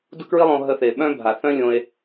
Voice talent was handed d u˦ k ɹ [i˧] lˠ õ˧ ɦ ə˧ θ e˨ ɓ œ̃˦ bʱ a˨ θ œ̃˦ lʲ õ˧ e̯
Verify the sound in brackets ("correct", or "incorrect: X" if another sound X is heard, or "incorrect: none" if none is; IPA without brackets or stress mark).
incorrect: i˦